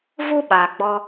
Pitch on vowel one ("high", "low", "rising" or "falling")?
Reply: high